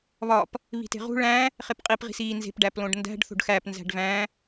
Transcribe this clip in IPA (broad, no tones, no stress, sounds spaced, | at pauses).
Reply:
β ɒ p | β i̤ t e̤ ʁ ṳ ɭ æ̃ | χ e p qʼ i p ʁ i̤ s iː n z e̤ p ɖ æ p l õ ɖ n d æ̤ ɖ θ o̤ ɖ x æ p n z æ̤ ɖ v æ̃